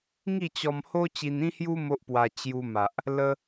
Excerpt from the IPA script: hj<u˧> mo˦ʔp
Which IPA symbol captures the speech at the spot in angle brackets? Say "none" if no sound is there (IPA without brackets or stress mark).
u˦